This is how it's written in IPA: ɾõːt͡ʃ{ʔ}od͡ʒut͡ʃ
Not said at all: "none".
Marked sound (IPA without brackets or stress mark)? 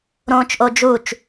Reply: ʔ